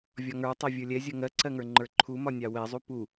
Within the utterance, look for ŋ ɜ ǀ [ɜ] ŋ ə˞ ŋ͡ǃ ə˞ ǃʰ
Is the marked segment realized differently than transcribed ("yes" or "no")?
no